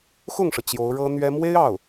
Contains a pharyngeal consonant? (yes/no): no